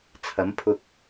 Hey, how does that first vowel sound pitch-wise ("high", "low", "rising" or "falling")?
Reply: rising